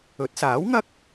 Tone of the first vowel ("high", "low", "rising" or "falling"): rising